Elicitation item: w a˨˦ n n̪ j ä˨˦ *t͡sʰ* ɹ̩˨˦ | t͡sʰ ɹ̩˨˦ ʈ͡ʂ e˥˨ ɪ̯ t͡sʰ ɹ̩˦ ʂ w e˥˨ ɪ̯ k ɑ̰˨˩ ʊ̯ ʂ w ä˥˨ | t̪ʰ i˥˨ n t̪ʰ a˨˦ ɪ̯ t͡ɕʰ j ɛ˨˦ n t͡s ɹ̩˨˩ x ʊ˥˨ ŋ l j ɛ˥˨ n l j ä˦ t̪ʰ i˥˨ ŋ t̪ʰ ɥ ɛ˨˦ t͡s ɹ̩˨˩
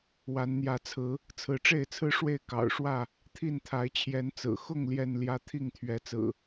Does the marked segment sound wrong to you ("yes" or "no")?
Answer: no